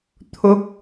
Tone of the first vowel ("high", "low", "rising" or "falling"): rising